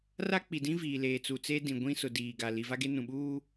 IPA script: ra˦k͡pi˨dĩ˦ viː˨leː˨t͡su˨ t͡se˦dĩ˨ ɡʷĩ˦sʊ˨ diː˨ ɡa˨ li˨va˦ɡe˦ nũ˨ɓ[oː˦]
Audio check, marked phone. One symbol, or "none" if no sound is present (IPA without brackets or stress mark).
uː˦